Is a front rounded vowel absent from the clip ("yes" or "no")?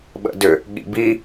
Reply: no